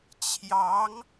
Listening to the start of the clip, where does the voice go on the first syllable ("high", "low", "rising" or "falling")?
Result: rising